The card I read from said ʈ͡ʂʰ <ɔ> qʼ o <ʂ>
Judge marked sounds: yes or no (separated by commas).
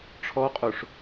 yes, yes